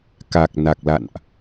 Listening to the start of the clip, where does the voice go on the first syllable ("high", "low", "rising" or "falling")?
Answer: low